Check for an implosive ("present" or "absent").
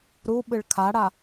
present